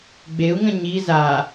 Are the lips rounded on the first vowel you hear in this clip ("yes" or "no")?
no